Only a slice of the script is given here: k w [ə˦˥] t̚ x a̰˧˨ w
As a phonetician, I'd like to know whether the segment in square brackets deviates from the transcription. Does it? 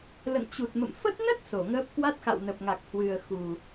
yes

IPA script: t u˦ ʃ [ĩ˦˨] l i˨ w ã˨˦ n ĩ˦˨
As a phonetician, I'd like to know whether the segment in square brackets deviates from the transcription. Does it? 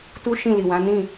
no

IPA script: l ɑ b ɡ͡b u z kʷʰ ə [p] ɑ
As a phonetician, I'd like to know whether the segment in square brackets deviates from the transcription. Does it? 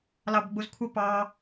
no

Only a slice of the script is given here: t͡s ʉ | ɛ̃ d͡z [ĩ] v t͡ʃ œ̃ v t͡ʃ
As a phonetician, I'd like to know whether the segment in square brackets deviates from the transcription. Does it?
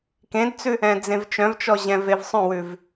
yes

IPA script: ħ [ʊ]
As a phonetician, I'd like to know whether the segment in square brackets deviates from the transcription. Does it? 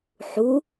yes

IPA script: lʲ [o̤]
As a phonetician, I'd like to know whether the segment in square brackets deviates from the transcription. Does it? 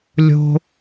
no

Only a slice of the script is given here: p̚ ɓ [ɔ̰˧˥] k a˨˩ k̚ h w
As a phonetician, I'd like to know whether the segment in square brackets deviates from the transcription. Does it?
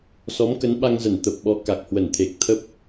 yes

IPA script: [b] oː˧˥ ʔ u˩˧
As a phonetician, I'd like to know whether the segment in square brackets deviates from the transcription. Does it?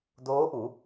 yes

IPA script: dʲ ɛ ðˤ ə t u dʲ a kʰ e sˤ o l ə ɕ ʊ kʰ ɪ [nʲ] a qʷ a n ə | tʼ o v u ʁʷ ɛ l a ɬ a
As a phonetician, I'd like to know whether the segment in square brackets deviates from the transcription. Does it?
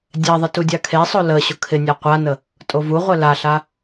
no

